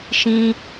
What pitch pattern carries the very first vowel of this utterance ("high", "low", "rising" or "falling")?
high